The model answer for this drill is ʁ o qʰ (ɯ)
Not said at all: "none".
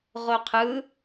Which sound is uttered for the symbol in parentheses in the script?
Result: ɯ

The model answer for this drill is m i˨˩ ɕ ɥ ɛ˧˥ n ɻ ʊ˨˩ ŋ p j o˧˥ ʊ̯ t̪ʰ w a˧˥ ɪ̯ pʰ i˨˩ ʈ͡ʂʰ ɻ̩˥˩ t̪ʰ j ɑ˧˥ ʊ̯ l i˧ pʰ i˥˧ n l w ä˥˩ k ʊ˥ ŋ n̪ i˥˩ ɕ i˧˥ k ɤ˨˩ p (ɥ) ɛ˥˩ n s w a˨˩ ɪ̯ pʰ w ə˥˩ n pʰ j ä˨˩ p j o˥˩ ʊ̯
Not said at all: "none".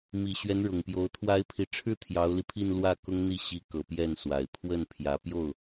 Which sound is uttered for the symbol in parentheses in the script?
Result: j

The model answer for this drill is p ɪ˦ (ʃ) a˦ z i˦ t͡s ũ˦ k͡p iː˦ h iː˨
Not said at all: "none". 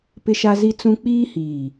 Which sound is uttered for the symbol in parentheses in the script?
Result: ʃ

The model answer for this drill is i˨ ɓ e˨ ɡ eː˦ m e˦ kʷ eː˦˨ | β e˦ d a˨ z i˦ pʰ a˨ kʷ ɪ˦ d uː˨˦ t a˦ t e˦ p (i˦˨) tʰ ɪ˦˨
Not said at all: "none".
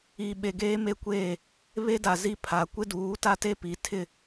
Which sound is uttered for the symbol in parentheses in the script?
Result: i˨˦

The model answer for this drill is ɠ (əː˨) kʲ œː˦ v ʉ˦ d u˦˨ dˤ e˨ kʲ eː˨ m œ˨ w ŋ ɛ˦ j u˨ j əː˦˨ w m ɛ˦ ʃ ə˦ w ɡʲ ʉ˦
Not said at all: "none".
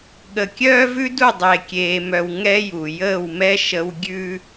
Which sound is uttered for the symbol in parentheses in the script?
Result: ə˨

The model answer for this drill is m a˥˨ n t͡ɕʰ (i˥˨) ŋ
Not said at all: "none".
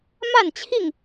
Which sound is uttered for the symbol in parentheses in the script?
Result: i˥˨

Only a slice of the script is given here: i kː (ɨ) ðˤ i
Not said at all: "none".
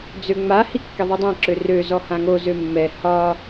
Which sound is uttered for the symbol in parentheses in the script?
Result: e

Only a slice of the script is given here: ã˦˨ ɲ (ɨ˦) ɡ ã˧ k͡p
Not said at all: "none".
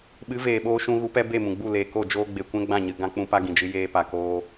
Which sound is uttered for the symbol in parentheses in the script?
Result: ɨ˧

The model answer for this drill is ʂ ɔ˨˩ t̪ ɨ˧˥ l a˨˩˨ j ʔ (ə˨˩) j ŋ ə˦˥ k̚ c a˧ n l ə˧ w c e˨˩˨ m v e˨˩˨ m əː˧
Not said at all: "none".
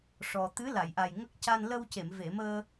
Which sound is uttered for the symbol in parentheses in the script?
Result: a˨˩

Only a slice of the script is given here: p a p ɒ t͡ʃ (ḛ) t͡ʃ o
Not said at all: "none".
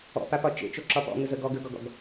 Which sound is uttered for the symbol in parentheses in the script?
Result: ḛ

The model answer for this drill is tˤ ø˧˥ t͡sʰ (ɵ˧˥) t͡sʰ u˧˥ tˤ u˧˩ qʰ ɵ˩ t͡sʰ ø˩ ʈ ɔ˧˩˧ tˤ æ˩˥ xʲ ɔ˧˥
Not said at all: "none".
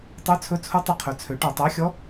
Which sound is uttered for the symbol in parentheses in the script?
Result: ɵ˧˥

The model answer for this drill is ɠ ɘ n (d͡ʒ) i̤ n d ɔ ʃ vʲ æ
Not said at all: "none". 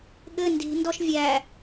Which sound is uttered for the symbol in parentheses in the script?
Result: d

